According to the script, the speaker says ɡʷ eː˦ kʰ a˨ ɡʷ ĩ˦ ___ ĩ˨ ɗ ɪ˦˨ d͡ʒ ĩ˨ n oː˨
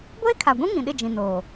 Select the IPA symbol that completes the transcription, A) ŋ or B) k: A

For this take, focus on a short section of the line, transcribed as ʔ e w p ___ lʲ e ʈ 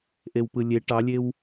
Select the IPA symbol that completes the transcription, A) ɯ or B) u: A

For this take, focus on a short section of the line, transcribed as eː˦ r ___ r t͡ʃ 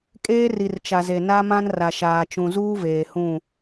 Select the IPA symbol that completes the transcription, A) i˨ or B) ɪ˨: A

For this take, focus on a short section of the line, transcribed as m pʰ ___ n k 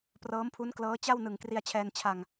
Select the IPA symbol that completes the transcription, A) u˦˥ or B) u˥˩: A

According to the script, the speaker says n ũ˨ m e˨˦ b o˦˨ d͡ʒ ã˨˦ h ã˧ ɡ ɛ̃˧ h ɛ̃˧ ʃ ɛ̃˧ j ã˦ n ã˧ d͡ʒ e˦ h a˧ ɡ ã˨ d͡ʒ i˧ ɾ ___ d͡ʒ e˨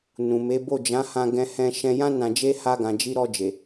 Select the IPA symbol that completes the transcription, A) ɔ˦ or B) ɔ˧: B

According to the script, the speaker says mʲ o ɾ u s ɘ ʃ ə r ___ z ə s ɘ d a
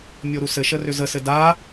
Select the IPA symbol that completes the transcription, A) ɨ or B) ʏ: B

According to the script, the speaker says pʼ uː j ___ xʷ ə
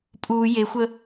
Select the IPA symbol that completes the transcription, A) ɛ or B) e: B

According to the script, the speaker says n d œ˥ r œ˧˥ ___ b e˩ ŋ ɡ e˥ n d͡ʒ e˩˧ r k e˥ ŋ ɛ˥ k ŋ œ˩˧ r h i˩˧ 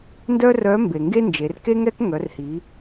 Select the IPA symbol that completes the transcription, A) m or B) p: A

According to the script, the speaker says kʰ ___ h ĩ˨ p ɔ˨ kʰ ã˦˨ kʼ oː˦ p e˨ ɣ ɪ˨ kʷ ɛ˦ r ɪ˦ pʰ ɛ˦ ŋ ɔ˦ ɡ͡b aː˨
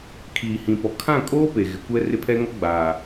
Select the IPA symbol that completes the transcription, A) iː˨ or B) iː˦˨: A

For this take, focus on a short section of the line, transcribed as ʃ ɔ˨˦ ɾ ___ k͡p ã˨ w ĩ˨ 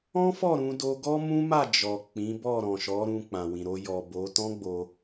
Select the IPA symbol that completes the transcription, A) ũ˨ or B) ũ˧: B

